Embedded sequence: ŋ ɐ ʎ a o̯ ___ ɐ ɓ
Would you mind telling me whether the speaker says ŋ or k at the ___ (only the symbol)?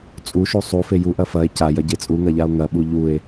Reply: ŋ